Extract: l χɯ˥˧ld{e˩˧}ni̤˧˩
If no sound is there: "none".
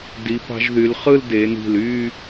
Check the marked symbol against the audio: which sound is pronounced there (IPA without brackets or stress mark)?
e˩˧